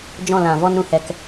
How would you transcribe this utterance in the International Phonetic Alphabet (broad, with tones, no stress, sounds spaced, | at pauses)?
d͡ʒ ɔ̃˦˨ l ã˨ v ɔ˦ n ɾ ũ˦ h ɛ˧ k